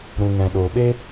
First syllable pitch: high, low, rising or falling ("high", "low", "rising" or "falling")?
low